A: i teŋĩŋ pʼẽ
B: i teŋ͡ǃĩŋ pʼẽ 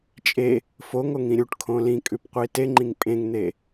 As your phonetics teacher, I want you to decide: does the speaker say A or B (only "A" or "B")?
B